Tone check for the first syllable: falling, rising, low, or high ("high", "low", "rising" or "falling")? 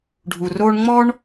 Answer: low